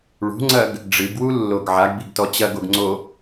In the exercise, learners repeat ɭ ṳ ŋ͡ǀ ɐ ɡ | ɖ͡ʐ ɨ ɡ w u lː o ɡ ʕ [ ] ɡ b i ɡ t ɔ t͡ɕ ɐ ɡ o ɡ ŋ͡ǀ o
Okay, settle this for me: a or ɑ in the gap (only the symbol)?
a